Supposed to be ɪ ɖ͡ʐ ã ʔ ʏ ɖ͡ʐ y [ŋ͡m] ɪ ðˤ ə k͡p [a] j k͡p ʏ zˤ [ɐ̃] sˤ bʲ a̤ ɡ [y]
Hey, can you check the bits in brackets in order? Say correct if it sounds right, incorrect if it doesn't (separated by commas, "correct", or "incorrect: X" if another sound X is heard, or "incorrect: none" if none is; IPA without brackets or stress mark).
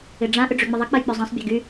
correct, incorrect: ɐ, correct, correct